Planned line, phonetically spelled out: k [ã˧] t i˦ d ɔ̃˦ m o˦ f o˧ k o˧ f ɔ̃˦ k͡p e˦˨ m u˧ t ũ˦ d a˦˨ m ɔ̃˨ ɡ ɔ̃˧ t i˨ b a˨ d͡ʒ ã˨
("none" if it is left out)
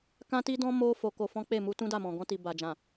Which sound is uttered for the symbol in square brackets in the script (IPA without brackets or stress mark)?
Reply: ã˦